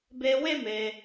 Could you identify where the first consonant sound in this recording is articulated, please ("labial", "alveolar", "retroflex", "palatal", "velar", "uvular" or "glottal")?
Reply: labial